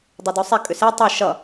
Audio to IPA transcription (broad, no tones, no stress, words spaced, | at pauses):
dˤodosˤe kʼʏse tˤi ʃʌ